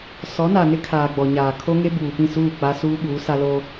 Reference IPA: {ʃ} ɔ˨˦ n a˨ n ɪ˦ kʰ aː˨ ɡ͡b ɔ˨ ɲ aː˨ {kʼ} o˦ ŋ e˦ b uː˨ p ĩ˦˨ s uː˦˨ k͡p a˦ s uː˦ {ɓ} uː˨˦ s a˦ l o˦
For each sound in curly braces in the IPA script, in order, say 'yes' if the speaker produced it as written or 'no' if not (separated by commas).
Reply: no, no, yes